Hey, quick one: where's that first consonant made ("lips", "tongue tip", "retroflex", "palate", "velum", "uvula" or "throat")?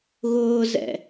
velum